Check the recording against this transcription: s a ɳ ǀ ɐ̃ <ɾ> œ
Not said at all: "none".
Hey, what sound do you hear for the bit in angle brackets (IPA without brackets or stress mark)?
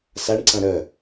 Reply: ɾ